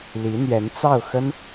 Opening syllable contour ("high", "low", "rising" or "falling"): rising